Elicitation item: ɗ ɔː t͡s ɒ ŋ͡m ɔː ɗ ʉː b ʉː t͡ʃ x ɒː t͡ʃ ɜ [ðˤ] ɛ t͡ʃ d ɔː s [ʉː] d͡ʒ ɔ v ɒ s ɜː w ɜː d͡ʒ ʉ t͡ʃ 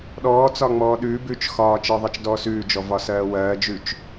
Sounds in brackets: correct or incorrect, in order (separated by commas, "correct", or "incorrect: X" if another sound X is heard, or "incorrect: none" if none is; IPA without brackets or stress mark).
correct, correct